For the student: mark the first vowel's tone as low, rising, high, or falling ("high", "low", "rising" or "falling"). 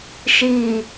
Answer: low